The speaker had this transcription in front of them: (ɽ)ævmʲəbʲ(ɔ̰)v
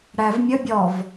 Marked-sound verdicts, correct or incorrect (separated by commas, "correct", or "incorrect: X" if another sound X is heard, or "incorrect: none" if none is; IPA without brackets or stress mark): correct, incorrect: ɔ